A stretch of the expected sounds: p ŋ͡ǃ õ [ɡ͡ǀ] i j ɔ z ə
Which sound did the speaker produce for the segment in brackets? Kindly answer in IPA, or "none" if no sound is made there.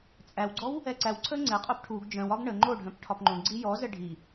ɡ͡ǀ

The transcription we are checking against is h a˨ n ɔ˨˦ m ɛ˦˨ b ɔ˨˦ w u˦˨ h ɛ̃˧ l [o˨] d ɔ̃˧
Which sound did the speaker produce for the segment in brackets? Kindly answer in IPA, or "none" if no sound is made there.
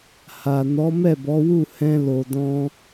o˨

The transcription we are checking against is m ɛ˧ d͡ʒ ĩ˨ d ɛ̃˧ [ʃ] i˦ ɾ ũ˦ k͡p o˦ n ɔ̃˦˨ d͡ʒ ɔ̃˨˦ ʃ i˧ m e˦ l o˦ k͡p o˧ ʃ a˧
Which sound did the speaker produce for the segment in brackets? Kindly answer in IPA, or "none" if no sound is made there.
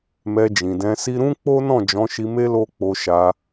s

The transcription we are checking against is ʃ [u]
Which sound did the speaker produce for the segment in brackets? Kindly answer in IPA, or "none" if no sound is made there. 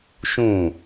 ũ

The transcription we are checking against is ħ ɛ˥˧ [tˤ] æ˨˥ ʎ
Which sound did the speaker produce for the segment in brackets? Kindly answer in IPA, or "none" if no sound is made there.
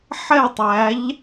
tˤ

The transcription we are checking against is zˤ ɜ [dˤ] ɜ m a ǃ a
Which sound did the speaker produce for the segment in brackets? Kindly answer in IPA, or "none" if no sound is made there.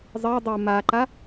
dˤ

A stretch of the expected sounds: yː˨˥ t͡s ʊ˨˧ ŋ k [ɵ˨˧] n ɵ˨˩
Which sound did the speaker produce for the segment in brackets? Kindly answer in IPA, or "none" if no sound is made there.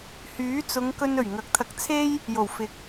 ɵ˧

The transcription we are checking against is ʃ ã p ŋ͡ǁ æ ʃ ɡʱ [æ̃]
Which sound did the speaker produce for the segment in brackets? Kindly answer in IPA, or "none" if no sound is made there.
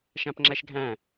æ̃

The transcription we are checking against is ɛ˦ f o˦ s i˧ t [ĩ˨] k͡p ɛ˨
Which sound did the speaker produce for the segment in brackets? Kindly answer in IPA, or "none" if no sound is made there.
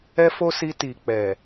i˨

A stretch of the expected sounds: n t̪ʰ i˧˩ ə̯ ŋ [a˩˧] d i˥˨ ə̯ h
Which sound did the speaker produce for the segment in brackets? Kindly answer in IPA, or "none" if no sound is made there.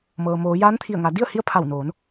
a˩˧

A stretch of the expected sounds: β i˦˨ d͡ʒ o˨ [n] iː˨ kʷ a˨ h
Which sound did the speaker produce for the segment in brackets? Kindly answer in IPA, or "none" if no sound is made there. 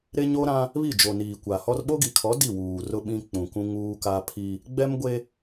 n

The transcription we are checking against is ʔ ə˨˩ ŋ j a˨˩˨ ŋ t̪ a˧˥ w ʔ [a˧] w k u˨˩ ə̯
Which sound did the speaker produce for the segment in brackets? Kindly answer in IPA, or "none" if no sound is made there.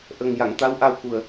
a˧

